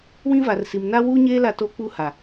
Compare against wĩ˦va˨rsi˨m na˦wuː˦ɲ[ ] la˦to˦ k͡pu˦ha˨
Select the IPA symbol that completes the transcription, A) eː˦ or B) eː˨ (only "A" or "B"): A